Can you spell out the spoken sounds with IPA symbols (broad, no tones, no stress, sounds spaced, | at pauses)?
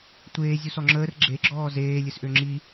tʷ eː zʲ u s ɔ ŋ͡ǁ əː r ɡ͡ǁ e ɡ͡ǁ ɔː z eː lʲ ɨ s ʔ ø ŋ͡ǁ i